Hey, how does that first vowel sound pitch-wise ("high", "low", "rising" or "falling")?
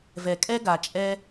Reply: low